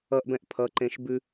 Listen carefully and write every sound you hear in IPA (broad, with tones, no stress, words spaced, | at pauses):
ʌ˧ʔbɛ̃˧ʔ pʰʌ˨˦ǃẽ˧ʃ bʉ˧